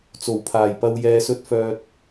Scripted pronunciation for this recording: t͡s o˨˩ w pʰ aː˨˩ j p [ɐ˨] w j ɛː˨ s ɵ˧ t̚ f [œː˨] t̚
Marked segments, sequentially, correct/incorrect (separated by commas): correct, correct